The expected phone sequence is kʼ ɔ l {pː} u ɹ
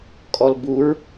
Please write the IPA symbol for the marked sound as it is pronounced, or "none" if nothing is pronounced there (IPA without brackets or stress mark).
b